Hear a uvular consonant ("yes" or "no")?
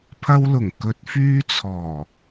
no